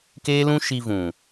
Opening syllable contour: high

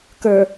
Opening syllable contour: low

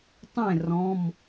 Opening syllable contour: falling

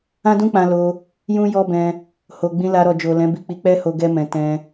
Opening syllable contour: high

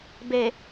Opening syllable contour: low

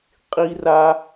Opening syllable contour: high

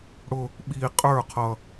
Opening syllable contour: high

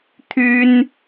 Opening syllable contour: high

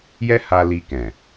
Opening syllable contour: high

